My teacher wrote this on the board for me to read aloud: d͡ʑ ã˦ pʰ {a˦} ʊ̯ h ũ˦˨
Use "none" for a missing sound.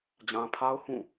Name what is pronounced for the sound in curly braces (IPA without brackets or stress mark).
a˦